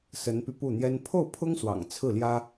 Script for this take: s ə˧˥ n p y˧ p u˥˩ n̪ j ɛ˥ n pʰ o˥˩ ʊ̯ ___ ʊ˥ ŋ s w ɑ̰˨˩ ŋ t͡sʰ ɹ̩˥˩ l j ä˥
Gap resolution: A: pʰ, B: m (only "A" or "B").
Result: A